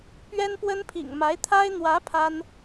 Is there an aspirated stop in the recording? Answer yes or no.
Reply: yes